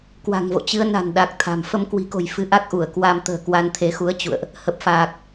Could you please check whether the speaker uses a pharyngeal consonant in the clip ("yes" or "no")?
no